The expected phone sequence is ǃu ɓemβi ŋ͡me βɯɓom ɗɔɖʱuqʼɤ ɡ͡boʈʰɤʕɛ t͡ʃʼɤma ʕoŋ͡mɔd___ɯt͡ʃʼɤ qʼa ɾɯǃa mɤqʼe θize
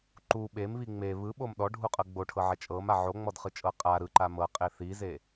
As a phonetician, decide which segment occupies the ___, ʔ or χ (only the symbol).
χ